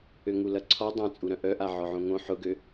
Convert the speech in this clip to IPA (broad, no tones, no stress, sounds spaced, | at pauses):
ø ŋ u l ɐ ǀʰ ɔ dˤ ã t͡sʼ u ɾ œ̃ ʔ œ ʔ a ʕ ɔ ʕ õ ŋ õ ħ ʊ ɡ ø